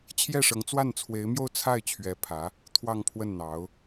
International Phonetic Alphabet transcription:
t͡ɕʰ j ɛ˥˩ ʂ ɤ˧˥ ŋ t͡s w a˥˩ n t͡sʰ w e˧˥ ɪ̯ m j o˥˧ ʊ̯ t͡sʰ a˥˩ ɪ̯ t͡ɕʰ ɥ ɛ˧˥ pʰ ä˧˥ | t̪ʰ w ɑ˥˧ ŋ pʰ w ə˥˩ n n̪ ɑ˧˥ ʊ̯

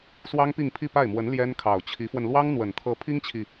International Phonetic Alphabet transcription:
s w ɑ˥ ŋ p i˥˧ ŋ pʰ i˥˧ p a˥˩ ɪ̯ m w ə˧˥ n l j ɛ˥ n kʰ ɑ˨˩ ʊ̯ t͡ɕʰ i˧˥ f w ə˧ n l w ɑ˥ ŋ n̪ w ə˨˩ n t̪ʰ ɤ˧˥ pʰ i˥ ŋ t͡ɕʰ i˨

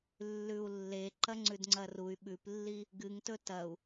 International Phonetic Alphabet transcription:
lː ʉ u̯ lː e ǃ ɐ ŋ͡ǀ ʉ d ŋ͡ǀ ɐ r u y̯ ɓ ʉ p lː i | ɡ ɨ ŋ t ɵ t ɐ u̯

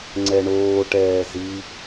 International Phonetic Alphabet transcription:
ŋ͡ǀ ɛ ɳ oː ʈ ɛː z i

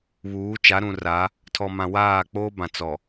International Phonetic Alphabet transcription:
β uː˨˦ t͡ʃ a˨˦ ɾ ũ˨ r a˨˦ | tʰ ɔ˨ m ã˨ w aː˦˨ k͡p oː˦ b ã˨ t͡s ɔ˨

